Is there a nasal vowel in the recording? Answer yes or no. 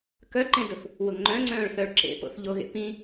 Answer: yes